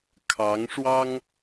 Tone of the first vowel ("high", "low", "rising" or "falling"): rising